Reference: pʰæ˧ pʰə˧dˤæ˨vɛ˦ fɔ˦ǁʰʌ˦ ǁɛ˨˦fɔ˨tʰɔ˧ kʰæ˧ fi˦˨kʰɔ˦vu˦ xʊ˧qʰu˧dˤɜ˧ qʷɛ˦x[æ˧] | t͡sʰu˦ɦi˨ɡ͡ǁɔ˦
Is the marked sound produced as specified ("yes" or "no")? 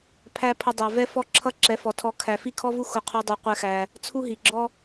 yes